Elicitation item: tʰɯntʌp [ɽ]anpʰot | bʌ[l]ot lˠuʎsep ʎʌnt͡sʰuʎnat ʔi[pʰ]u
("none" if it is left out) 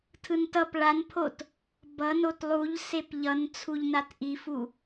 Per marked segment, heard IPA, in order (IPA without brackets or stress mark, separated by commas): ɭ, n, f